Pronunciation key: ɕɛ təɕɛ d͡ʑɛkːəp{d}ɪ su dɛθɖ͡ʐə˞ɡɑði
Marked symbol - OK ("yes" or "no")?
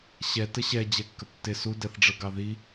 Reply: no